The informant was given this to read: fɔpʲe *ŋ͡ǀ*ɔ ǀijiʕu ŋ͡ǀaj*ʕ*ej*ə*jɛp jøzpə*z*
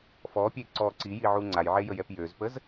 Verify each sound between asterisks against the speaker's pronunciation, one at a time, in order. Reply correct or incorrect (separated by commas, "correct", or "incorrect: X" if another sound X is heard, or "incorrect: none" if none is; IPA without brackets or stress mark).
incorrect: ǀ, correct, correct, correct